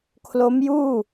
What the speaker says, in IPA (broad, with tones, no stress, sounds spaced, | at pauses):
kʰ l o˦˥ m j uː˥˩